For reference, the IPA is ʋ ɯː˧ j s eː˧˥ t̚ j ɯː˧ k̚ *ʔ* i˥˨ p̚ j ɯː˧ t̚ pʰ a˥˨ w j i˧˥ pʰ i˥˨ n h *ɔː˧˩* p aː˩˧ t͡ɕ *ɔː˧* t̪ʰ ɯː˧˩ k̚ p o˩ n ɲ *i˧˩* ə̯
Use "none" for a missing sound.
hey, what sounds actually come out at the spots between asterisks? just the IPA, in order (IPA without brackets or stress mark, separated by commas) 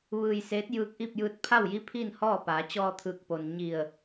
ʔ, ɔː˥˨, ɔː˧, i˧˩